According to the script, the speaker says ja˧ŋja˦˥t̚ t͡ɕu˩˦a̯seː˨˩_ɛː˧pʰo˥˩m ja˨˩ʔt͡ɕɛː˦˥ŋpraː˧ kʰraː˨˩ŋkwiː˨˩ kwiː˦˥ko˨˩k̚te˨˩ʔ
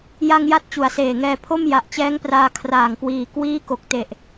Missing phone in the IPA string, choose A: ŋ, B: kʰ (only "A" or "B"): A